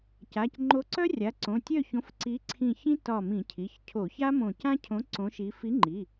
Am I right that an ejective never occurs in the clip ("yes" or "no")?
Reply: yes